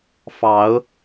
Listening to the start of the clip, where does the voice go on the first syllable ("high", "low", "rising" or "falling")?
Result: rising